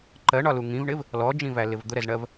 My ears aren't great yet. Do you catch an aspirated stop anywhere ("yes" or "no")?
no